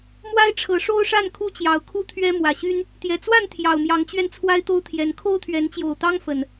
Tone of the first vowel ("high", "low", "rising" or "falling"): high